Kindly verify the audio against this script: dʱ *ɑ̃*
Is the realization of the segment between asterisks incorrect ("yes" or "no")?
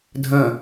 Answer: yes